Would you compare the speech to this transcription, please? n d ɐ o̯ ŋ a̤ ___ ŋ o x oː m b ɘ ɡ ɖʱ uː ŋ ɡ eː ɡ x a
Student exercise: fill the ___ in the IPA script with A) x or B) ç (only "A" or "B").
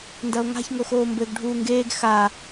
B